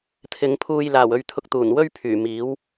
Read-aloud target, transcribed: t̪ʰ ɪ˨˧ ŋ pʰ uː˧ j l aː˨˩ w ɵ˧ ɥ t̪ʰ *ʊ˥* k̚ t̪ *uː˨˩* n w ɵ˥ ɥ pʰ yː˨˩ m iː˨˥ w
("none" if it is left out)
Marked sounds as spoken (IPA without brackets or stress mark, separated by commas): ʊ˧, uː˨˩